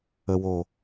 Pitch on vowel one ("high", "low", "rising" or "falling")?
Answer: low